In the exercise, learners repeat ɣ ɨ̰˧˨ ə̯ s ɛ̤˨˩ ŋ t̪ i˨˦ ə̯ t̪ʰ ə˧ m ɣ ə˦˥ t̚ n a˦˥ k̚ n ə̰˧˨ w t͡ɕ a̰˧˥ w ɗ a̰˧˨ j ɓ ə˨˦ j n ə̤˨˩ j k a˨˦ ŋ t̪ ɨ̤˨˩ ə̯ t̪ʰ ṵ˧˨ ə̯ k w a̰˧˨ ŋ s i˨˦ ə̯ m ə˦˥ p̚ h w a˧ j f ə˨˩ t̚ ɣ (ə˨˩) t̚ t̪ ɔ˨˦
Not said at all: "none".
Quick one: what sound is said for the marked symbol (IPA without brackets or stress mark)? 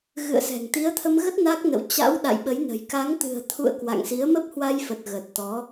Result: ə˨˩